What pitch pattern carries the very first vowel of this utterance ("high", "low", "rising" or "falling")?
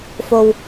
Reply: low